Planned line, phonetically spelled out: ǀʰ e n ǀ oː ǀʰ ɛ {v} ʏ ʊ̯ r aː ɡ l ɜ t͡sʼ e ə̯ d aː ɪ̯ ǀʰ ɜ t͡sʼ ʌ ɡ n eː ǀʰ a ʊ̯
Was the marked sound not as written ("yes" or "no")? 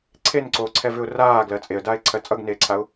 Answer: no